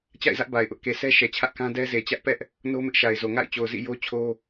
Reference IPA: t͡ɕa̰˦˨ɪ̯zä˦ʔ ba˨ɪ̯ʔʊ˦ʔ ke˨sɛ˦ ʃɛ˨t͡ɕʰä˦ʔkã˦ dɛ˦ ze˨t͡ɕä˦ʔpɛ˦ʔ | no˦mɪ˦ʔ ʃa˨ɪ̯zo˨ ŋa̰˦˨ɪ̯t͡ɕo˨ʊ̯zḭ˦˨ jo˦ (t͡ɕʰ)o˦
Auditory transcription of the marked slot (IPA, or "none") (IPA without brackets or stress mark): t͡ɕʰ